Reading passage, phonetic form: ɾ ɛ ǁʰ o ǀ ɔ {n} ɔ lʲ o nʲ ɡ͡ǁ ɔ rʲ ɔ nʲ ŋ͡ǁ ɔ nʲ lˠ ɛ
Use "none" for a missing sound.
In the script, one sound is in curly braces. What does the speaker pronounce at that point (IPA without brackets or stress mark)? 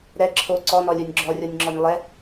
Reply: n